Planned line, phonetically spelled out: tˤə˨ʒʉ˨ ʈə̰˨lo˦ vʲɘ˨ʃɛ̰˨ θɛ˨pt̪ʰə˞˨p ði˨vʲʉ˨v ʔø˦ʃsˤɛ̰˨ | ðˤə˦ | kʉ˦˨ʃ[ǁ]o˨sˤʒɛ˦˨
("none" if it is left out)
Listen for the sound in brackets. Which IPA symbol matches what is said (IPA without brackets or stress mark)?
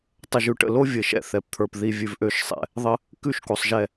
k